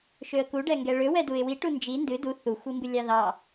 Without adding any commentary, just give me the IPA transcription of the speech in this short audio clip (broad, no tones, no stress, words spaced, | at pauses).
ʃøə̯ku ɖɛŋɡɛɭø wɛduɪ̯wi ʈund͡ʒi ndɨ du θu xʷimbɨlʲɑðɑ